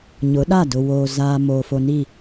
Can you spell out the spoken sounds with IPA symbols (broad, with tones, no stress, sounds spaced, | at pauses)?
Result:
ɲ ʊ˨˦ ɗ a˦˨ d ʊ˨ w oː˨ z a˨ m oː˨ f o˨ n i˦˨